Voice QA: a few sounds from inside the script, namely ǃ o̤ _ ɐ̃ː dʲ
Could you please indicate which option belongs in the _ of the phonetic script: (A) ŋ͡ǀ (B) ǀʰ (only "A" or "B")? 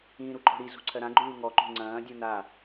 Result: A